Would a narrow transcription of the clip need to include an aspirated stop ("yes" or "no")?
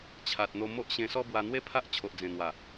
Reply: yes